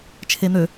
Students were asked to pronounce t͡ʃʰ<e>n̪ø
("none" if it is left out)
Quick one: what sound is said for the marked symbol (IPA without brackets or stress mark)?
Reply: e